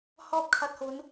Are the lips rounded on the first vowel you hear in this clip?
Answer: yes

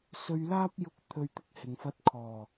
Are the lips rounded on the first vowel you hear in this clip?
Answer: yes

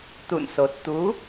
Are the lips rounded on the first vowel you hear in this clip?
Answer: yes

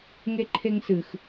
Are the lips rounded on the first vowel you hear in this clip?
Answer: no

